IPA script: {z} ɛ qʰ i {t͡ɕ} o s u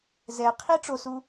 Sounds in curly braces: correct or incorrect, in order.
correct, incorrect

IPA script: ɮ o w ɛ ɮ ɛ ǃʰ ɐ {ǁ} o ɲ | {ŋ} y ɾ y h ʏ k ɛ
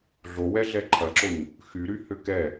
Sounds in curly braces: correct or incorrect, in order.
correct, incorrect

